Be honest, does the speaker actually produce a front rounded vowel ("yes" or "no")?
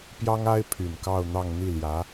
yes